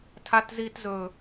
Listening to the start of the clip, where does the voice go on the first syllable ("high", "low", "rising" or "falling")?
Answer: high